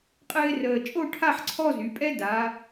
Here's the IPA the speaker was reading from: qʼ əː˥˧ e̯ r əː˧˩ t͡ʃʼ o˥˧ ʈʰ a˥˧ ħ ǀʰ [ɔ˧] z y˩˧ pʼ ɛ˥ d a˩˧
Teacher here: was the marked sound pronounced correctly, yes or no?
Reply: no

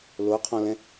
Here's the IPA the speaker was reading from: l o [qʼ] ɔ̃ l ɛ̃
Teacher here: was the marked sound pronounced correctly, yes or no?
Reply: no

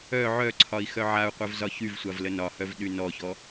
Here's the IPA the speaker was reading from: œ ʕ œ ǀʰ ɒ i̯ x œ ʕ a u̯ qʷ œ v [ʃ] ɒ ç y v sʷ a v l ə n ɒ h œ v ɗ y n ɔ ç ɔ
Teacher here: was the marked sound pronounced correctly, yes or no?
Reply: no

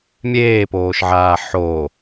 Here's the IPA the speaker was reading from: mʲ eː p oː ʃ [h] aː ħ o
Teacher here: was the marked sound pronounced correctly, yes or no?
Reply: no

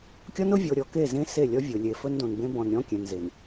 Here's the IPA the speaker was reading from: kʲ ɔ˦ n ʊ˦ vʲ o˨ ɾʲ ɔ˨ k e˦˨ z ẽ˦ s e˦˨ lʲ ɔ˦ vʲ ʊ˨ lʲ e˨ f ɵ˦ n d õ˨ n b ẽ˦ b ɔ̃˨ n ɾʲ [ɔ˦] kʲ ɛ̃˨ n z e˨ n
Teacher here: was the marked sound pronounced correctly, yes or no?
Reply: no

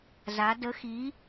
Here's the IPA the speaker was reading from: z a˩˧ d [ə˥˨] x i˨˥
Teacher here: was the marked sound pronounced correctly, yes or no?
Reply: no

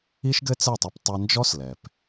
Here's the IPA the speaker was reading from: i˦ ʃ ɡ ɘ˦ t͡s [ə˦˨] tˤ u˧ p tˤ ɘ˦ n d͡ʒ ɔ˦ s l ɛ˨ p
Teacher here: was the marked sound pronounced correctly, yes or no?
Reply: no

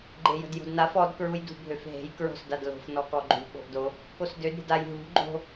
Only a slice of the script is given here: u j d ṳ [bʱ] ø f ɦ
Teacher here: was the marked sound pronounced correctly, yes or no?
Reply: yes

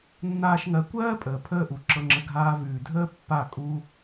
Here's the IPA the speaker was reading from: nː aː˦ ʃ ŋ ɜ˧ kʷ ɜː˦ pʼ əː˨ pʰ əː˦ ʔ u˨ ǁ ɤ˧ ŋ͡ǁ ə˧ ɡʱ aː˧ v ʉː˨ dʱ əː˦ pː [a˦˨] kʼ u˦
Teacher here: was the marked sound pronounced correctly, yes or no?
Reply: yes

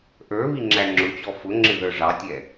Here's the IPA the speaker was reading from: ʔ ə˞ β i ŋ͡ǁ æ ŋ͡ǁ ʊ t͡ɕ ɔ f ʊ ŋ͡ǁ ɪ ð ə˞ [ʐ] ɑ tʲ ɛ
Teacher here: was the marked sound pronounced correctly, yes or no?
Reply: yes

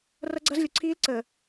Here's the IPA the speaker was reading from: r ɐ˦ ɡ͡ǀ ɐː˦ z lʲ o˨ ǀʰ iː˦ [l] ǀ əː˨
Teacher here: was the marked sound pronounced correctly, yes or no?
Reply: yes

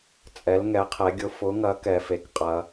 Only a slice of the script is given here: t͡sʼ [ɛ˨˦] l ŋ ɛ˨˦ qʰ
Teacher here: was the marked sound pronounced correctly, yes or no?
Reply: yes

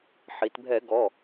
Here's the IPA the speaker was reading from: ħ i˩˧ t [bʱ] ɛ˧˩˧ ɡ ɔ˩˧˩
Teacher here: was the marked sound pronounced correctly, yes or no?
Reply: yes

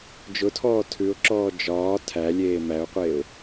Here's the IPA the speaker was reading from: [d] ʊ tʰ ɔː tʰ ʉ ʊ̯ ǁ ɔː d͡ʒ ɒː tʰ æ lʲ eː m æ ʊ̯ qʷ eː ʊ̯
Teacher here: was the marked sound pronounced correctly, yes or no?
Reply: no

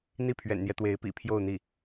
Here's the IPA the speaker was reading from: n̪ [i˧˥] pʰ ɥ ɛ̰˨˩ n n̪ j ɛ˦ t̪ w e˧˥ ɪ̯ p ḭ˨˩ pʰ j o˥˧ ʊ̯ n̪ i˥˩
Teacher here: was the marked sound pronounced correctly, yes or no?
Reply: no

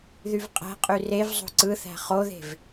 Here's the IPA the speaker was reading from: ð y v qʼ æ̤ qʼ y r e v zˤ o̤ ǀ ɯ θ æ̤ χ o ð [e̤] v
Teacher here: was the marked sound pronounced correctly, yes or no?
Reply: yes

